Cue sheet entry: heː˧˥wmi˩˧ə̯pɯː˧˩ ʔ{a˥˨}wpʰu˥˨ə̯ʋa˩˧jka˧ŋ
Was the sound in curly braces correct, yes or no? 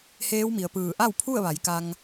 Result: yes